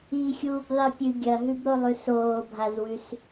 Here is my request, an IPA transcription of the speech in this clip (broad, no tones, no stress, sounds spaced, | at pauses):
i xʲ uː b ðˤ i pʲ ɨ ɡʲ ɐ ɦ ʉ b ɾ o lˠ ʉ s oː bʱ a z w ʉ s